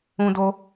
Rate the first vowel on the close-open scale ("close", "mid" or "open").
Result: close